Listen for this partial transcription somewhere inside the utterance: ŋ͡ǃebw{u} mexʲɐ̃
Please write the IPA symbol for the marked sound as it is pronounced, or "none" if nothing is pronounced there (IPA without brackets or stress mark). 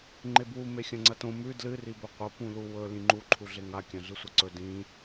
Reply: u